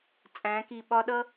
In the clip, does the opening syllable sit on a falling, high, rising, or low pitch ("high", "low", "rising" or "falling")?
rising